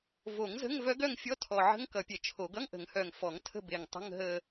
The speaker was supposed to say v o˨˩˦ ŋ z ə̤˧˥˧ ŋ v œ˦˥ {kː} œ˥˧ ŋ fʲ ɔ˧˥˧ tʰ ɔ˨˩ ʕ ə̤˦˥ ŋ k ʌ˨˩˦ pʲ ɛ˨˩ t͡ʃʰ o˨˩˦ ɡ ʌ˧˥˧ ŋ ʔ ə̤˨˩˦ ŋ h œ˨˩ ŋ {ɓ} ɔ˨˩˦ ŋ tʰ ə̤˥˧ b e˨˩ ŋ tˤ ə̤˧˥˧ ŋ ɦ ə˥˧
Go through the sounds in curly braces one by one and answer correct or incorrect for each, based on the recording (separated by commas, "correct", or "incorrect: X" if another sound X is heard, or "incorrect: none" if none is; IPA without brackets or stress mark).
incorrect: ɡ, incorrect: f